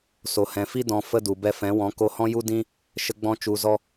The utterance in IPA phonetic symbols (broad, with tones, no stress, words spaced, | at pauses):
so˨hɛ̃˨fi˦ dɔ̃˧fə˦ du˨bɛ˦ fɛ̃˨˦wɔ̃˨˦ ko˧hɔ̃˦ju˦ dĩ˦ | ʃə˦ɡ͡bɔ̃˦ t͡ʃu˧zɔ˦